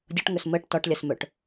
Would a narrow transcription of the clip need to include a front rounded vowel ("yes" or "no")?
yes